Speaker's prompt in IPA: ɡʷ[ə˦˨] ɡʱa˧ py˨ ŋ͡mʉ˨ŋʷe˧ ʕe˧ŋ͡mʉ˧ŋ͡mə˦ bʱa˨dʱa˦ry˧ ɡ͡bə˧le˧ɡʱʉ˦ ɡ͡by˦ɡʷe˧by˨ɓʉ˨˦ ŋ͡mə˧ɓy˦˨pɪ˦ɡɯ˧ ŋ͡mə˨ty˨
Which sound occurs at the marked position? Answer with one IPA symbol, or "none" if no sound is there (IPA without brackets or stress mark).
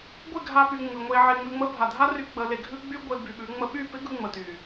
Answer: ɪ˦˨